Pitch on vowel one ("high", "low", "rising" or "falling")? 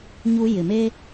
high